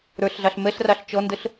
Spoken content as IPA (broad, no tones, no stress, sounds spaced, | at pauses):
ɾ ə˞ ɬ ɮ ɑ ɬ m ɛ ɬ r ɑ ɬ t͡ʃ ɔ n d ə ɬ